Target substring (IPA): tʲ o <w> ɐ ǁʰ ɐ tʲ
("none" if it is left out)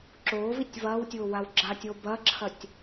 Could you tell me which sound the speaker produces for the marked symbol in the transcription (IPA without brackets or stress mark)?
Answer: b